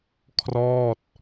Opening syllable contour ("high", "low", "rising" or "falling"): falling